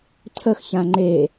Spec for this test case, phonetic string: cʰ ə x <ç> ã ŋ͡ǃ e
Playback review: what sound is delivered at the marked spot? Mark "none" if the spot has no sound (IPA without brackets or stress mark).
ç